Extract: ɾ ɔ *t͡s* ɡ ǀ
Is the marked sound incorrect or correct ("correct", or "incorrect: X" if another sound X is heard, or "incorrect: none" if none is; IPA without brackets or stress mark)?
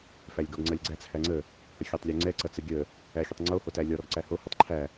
incorrect: none